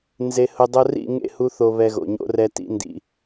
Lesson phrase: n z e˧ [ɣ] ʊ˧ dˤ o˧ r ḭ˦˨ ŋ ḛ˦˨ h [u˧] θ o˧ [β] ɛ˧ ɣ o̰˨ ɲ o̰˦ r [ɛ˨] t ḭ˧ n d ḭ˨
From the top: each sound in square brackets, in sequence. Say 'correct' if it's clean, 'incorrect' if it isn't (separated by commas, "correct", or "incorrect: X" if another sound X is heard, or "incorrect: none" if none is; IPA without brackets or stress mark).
incorrect: h, correct, correct, incorrect: ɛ˧